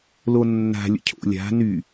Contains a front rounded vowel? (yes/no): yes